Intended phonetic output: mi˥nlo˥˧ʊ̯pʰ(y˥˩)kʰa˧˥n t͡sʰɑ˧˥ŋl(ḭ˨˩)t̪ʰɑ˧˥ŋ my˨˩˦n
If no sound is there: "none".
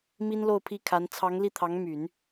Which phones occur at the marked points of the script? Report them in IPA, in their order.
i˥˩, i˥˩

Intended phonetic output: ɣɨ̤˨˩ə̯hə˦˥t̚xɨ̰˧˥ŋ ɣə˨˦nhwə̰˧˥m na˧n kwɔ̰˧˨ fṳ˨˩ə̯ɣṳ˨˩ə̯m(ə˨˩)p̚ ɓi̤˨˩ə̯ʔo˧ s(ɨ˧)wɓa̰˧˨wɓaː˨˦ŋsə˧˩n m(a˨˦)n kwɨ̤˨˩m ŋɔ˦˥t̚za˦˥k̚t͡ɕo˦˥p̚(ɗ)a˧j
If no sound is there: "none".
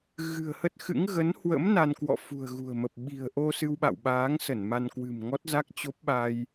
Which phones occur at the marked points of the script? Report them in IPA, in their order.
ə˨˩, ɨ˧, a˧, ɓ

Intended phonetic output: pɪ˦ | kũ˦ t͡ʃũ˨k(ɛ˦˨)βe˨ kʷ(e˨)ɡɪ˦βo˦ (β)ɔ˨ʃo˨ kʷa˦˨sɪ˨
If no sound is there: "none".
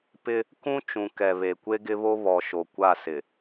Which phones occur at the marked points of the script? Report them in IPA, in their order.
ɛ˨, e˦, β

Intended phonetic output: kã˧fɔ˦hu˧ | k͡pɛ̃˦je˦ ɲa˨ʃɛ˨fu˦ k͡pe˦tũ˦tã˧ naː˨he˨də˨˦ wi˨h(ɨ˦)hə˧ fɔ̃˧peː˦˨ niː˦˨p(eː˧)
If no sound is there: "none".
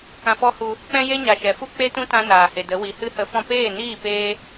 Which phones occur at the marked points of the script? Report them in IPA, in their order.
ɨ˦, eː˧

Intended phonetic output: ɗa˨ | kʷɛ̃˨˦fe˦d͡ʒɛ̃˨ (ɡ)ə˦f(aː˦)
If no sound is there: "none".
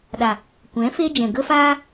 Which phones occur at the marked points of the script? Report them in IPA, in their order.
ɡ, aː˦

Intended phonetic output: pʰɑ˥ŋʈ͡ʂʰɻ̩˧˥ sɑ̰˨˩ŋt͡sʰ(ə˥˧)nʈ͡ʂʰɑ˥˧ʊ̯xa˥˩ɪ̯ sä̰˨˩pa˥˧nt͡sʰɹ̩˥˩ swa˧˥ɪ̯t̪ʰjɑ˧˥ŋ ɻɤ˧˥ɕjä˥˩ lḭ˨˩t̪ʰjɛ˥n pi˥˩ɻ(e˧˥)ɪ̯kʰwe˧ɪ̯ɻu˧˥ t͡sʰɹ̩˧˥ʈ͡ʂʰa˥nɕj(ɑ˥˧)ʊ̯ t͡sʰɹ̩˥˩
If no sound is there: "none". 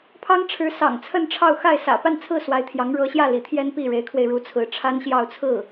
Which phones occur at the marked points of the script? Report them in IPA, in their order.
ə˥˧, e˧˥, ɑ˥˧

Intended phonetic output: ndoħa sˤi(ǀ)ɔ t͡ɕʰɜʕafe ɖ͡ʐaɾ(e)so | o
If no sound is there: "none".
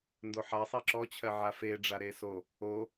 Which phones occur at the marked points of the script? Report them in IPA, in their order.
ǁ, e

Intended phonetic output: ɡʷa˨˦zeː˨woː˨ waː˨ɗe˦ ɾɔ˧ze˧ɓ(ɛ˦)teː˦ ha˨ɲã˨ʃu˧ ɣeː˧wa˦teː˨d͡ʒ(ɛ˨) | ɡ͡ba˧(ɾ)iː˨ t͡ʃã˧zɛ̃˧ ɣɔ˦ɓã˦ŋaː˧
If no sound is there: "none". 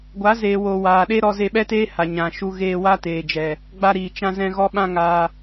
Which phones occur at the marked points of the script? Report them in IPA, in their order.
ɛ˦, ɛ˨, ɾ

